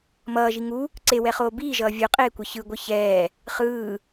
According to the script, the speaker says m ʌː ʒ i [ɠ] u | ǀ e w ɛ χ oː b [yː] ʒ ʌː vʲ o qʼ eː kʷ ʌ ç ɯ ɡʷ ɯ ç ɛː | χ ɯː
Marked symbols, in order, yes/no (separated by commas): no, no